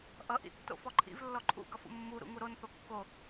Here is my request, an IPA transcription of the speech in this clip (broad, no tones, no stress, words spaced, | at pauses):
ʔʌʔḭ tːo̰fɔǃʰḭv lːɔǃʰṵɡʌfṵ mːuɾṵ ŋuɾonθo kːo